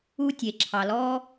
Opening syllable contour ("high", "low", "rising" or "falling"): high